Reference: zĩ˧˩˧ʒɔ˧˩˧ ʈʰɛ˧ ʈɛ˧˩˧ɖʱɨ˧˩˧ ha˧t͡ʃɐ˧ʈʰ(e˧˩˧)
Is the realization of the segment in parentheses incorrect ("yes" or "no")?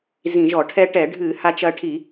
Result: yes